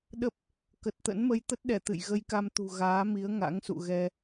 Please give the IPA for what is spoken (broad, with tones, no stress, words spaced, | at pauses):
ɗə˦˥p̚ | kə˨˩t̚t̪ə̰˧˥nmə˧j t̪ə˦˥t̚ɗɛ˧˩ t̪ɨ̰˧˨j ɣə˧jka˧m t̪ṳ˨˩ ɣaː˨˦mi˨˦ə̯ ŋa̰˧˥ŋsṵ˧˨ɣɛ˧